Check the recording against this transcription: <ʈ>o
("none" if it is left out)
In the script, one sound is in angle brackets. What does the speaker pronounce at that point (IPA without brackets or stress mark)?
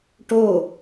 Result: ʈ